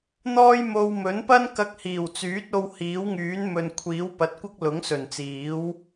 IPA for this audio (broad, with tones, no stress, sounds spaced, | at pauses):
n̪ ɔː˥ j m o˧ w m ɵ˨˥ n p ɐ˥ n k ɐ˧ k̚ h iː˨˩ w t͡s yː˨˥ t̚ o˧ w h iː˨˥ w ŋ yː˨˥ n m ɵ˨ n kʷʰ iː˨˥ w p ɐ˨ t̚ kʷ ɐ˥ k̚ l ʊ˨˥ ŋ s ɵ˨˩ n t͡s iː˨˥ w